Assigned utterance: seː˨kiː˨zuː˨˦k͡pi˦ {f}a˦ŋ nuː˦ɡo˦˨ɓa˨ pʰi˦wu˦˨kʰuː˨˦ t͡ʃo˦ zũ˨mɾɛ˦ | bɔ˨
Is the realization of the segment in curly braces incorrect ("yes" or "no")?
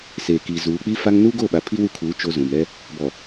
no